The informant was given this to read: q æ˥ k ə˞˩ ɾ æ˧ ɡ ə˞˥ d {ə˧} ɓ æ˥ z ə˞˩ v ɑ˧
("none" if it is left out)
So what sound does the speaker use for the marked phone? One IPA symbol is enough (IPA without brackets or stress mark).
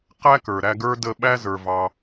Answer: ə˧